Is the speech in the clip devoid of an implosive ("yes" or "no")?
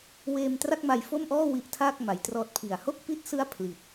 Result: yes